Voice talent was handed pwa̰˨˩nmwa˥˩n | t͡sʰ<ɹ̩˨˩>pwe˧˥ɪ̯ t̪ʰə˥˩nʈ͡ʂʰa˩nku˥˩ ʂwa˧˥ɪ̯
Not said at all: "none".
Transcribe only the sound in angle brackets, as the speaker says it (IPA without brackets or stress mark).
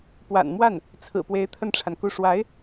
ɹ̩˨˩